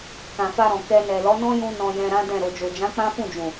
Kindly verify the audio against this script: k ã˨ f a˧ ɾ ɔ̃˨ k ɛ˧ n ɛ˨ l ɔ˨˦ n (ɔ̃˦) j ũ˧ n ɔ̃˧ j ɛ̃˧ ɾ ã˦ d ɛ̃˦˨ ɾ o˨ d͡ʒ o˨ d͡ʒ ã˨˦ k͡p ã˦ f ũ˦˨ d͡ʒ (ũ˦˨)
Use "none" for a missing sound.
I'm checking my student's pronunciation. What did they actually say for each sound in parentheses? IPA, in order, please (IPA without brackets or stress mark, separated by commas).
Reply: ɔ̃˦, ũ˨